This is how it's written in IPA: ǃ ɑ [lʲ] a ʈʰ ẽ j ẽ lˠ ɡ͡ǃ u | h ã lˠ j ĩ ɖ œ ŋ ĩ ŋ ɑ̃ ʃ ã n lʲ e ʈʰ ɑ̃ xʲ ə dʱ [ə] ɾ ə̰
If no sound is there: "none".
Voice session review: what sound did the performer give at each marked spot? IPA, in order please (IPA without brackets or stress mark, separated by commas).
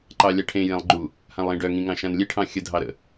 lʲ, ɑ